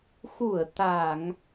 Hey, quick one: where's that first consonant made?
velum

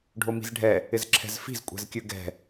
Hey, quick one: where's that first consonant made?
retroflex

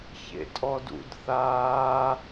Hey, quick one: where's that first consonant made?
palate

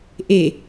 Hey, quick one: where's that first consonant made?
throat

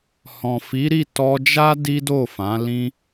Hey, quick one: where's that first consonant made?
throat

